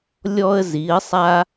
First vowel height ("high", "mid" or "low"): mid